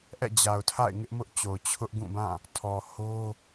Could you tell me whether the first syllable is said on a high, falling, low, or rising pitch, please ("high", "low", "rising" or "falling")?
falling